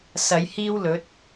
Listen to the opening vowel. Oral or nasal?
oral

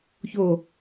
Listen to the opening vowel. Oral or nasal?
oral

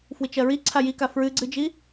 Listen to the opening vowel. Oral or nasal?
oral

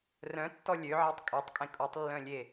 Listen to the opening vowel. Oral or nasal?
nasal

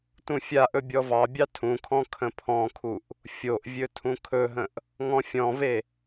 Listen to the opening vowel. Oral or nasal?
nasal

